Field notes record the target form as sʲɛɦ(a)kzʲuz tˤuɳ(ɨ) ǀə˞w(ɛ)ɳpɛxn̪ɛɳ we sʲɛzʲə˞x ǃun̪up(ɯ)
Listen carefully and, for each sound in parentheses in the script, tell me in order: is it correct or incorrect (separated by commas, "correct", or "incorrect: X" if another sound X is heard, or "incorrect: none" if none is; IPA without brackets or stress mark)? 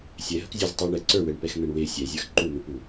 incorrect: ə, incorrect: ɛ, correct, incorrect: u